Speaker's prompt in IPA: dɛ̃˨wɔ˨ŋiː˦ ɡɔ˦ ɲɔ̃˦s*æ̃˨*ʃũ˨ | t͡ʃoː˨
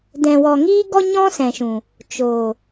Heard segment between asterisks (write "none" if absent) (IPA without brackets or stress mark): ɛ̃˨